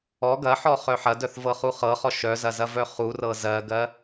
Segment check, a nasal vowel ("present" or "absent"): absent